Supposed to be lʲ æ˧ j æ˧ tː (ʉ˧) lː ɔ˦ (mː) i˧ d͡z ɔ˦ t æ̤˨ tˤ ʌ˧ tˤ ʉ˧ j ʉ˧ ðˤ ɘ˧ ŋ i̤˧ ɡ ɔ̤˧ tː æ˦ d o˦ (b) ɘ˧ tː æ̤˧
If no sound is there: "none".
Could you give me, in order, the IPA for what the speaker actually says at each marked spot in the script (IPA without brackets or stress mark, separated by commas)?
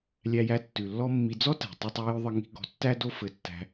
ʉ˨, mː, f